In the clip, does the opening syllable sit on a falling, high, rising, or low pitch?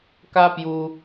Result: high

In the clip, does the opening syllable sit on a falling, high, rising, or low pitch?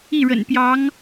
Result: falling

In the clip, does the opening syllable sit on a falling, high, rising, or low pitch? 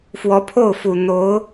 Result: rising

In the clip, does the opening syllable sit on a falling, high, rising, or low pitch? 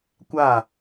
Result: falling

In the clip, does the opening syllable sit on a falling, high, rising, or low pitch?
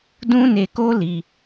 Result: high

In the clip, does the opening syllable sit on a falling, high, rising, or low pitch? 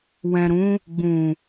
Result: low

